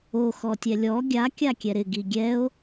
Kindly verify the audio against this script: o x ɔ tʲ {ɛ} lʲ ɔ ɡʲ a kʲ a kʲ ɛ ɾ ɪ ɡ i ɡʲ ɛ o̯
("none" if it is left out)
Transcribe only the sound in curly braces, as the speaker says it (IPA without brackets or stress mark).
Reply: ɛ